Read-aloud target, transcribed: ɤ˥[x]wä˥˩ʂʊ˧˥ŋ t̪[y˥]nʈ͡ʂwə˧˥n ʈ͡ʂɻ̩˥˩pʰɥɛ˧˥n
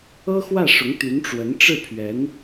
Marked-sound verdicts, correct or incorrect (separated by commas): correct, incorrect